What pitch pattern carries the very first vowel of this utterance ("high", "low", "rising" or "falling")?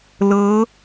rising